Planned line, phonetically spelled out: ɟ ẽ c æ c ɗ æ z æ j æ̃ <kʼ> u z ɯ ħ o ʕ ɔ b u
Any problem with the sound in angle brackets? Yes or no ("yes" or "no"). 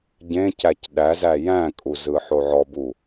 no